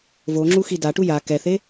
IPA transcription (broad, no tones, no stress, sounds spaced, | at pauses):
v o ŋ͡ǁ u x i d a ʈ u j a k ɛ θ e